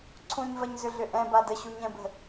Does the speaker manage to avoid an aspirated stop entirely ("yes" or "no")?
no